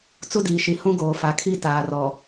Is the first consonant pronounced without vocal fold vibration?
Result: yes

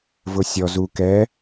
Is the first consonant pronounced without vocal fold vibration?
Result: no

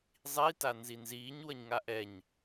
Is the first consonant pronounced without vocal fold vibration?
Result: no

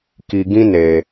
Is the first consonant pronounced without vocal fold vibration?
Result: yes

